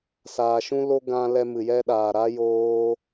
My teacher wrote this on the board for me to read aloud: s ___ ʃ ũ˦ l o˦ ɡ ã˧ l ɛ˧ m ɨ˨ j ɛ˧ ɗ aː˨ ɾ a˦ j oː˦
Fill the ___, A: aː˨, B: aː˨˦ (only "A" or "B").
A